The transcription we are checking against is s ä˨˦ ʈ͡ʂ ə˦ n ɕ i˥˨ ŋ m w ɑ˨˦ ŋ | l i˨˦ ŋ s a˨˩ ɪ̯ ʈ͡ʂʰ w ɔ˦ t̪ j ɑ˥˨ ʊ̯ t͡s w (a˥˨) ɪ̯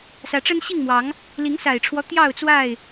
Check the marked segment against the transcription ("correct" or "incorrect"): correct